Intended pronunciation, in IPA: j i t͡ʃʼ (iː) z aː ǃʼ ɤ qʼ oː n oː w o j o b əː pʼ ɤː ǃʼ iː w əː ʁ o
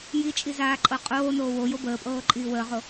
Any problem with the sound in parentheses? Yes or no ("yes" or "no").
yes